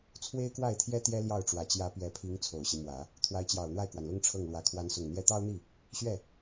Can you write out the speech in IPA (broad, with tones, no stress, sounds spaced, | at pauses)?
t͡sʰ w e˥ ɪ̯ k w a˥˩ ɪ̯ t̪ʰ j ɛ˥ t̪ j ɛ˥ l j ɑ˥˩ ʊ̯ ʈ͡ʂ w ä˨˩ t͡ɕ j ä˧˥ p ɥ ɛ˧˥ pʰ i˧˥ ŋ t͡sʰ o˨˩ ʊ̯ ɕ i˦ m w ä˨˩˦ | t̪ʰ w a˧˥ ɪ̯ t͡ɕ j ɑ˨˩ ʊ̯ n̪ w a˥˩ ɪ̯ k w a˩ n l ʊ˥ ŋ ʈ͡ʂʰ ɤ˥˩ ŋ l w ä˧˥ kʰ w a˧˥ n s ʊ˨˩ ŋ n̪ j ɛ˥ t̪ ɑ˥ ʊ̯ n̪ i˥˩ | ɕ ɥ ɛ˥˩